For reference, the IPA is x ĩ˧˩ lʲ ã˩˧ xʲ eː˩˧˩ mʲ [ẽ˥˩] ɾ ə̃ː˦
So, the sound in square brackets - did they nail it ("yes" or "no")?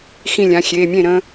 yes